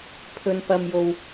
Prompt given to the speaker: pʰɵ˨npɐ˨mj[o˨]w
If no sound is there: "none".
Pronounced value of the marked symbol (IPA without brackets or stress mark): o˨